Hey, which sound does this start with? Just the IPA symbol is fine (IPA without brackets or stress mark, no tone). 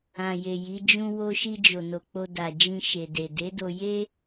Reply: ã